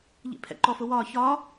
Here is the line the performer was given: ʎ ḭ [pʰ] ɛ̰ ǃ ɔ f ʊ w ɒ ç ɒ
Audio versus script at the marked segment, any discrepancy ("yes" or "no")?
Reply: no